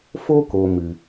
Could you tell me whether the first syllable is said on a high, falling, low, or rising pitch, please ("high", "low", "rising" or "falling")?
high